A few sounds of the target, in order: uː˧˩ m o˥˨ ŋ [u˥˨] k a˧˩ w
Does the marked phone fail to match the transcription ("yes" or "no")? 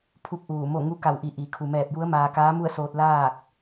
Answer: yes